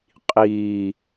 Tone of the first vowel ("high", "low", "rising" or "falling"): low